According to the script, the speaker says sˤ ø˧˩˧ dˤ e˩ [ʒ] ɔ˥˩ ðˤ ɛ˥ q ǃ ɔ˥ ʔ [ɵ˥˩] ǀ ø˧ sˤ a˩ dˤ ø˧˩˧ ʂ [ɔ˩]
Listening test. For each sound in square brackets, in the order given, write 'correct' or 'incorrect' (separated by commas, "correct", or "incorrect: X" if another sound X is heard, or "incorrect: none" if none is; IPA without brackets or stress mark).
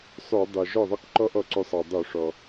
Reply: correct, incorrect: ɔ˥˩, correct